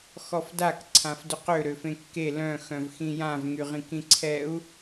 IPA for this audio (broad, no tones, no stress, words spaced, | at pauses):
xɔfdak ǀʰãfdʏqø ɾøfẽkːe lœ̃ xœ̃vxĩjãv ŋyʁĩkĩǀʰɛu̯